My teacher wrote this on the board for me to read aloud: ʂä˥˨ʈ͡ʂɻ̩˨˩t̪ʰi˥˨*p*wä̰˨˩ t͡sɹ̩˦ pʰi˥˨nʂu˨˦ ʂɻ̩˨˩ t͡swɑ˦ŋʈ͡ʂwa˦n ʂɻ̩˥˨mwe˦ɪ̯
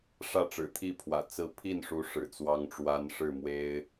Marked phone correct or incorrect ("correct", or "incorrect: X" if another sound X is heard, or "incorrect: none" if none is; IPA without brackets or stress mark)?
incorrect: pʰ